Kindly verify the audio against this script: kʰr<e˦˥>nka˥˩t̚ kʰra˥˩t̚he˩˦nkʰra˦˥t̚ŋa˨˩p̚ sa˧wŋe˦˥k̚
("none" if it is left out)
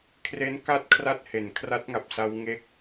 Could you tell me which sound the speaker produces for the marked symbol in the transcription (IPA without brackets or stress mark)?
e˦˥